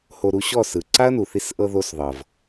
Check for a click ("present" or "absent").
present